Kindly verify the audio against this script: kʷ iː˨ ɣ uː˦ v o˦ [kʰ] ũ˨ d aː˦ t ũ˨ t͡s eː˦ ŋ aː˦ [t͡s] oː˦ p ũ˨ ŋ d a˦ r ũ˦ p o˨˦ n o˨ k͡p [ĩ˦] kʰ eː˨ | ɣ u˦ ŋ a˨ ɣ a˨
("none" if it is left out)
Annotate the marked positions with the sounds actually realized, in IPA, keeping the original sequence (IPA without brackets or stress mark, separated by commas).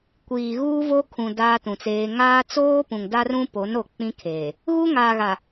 kʰ, t͡s, ĩ˦